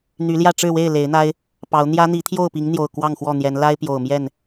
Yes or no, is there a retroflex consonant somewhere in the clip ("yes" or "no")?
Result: yes